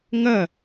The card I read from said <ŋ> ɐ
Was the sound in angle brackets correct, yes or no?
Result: yes